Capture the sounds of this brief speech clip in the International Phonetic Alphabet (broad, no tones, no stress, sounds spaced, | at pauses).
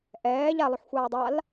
ʔ ɛː ʎ a lˠ ø ħ xʷ aː dˤ a l